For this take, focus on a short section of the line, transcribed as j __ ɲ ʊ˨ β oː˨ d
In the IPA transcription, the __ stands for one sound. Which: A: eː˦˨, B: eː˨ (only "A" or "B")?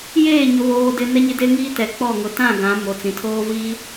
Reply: A